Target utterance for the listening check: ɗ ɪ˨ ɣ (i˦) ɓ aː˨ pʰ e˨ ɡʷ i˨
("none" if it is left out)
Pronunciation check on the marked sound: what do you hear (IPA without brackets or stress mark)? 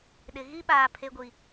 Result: i˦